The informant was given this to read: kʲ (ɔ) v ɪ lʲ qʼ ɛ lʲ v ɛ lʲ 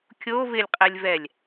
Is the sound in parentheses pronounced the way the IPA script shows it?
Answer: no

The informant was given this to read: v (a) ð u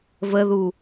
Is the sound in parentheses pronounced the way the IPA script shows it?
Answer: no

